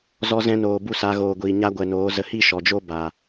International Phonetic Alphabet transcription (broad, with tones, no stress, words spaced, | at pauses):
zɔ˧zɛ̃˧noː˨ bu˦˨saː˧ ɣoː˨ɡʷiː˨ ɲa˦ ɡʷɛ˨noː˨˦zə˧ hi˦ ʃɔ˨d͡ʒo˦ba˨